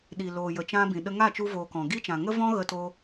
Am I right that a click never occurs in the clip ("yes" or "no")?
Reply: yes